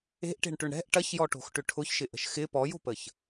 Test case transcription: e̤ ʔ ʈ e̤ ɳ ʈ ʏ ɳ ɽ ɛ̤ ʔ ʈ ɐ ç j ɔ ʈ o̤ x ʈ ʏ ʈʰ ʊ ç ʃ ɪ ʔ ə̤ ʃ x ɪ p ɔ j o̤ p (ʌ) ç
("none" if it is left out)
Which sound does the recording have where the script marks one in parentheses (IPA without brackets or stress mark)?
ə